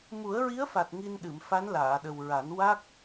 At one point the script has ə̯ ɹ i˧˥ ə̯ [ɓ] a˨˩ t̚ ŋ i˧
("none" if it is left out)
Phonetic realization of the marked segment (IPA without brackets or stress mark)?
f